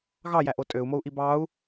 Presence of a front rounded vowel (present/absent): present